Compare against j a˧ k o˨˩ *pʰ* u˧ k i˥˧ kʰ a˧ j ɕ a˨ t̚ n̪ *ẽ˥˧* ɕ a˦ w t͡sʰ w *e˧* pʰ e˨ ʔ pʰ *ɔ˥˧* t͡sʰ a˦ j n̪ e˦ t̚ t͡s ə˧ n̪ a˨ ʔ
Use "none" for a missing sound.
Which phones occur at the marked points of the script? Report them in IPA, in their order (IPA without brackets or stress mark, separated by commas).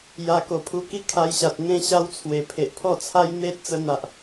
pʰ, ẽ˥˧, e˨˩, ɔ˥˧